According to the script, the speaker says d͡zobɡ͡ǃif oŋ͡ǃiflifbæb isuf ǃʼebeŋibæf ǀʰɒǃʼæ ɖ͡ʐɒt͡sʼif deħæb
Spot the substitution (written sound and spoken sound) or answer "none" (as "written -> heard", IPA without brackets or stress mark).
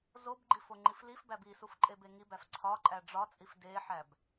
d͡z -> z